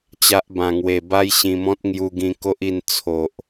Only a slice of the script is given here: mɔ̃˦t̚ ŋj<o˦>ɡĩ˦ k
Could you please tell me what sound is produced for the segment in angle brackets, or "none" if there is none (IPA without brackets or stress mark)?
u˦